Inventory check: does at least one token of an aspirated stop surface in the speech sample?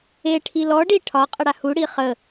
yes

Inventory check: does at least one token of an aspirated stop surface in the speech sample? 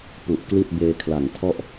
yes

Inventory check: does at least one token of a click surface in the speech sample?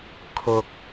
no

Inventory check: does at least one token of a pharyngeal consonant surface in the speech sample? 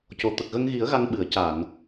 no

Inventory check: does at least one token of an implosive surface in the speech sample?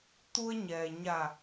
no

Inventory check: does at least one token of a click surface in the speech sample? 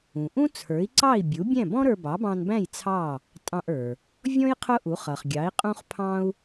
yes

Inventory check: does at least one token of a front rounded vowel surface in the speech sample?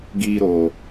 no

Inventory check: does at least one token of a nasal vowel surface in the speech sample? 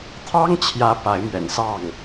no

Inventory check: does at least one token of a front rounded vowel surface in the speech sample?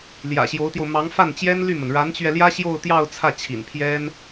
yes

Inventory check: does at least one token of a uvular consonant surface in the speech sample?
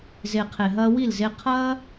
yes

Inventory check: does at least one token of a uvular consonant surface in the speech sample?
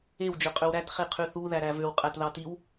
yes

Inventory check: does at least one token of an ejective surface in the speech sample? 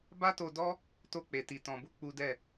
no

